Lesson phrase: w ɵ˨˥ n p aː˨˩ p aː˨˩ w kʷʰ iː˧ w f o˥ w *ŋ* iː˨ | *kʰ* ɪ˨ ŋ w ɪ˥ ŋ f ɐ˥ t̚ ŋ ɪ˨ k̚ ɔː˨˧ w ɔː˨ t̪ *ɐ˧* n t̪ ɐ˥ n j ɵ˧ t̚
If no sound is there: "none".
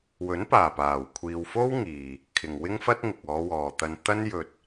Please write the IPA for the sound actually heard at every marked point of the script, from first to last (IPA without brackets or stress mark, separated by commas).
ŋ, kʰ, ɐ˧